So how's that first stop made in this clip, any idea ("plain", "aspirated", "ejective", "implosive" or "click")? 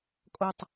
ejective